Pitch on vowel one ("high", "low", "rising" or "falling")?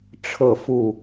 falling